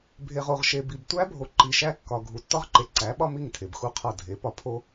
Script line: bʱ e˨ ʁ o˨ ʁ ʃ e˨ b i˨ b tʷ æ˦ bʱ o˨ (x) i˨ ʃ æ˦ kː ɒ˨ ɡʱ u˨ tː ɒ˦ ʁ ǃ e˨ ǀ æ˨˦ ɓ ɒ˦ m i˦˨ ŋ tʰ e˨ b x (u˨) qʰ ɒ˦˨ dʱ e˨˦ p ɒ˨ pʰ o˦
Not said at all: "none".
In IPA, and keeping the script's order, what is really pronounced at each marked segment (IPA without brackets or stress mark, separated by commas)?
ǃ, u˦˨